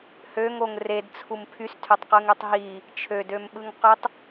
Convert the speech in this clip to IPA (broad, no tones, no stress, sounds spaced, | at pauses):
h ø ŋ o ŋ r e d t͡sʰ u m pʰ y s tʰ ø tˤ q ɯ ŋ ø tˤ ɦ i | t͡ʃʰ ø d ø m ɓ ɯ ŋ q ø tˤ